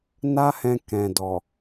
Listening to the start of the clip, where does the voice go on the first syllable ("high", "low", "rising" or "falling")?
high